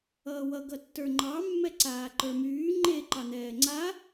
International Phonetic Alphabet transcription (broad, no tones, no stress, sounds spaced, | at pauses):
ʌː w ʌ ɡ ʌ tː ə˞ ŋ͡ǃ ɑ mː ɛ ǀ aː ǃ ə˞ m yː ŋ͡ǃ e ǃ ɑ n̪ ɛː ŋ͡ǀ a